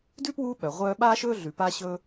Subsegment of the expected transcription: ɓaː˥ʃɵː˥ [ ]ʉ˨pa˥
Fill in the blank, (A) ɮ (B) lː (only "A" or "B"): A